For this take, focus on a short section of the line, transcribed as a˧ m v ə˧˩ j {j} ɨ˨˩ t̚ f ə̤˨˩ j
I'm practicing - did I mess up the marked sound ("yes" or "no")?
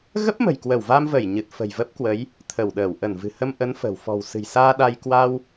yes